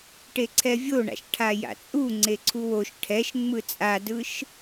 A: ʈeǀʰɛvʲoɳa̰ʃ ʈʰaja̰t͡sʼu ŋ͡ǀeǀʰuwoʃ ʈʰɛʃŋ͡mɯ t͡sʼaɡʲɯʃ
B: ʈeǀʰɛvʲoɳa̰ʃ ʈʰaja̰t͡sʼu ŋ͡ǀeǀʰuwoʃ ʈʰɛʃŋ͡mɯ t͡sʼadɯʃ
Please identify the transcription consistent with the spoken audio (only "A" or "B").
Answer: B